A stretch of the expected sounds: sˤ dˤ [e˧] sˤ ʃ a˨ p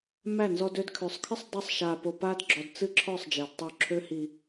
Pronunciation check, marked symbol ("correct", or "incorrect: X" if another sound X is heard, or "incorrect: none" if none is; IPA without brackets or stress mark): incorrect: ɨ˧